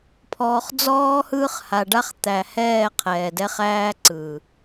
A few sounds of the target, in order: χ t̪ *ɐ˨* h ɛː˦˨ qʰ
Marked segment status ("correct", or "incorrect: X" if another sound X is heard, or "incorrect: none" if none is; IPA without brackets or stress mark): incorrect: æ˨